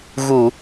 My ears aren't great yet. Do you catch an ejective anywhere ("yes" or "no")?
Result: no